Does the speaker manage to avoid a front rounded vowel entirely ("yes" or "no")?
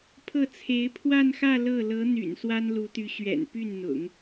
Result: no